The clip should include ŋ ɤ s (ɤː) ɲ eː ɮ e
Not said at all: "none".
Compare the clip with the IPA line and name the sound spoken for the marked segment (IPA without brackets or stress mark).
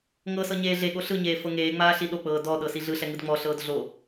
ɤ